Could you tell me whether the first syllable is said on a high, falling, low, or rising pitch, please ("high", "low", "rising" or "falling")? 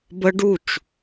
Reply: high